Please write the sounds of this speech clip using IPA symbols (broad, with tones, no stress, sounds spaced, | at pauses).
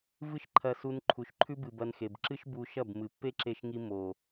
v ɨ˦ ʃ ǃʰ ɐ˧ s u˧ n ǃʰ u˨ ʃ ǃʰ ʉ˧ b ɨ˨ b ɐ˧ n x e˨ b ǁ ɨ˦ ʃ b u˧ ʃ ɐ˦˨ b m ɨ˨ pː e˦ ǁ e˧ ʃ ŋ i˧ m o˨